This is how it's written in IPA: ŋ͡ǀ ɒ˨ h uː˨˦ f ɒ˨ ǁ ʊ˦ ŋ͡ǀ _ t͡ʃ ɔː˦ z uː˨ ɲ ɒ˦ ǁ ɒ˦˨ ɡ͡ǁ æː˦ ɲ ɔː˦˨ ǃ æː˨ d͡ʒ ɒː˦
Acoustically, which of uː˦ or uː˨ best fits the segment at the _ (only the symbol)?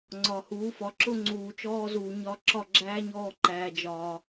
uː˨